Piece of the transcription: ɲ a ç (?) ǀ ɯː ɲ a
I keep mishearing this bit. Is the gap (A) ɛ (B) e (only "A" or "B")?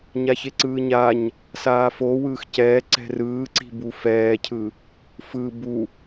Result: B